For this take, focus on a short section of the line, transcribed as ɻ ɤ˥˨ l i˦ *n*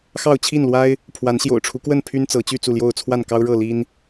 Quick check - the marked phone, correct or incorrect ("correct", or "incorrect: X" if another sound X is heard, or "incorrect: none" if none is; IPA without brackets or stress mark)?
correct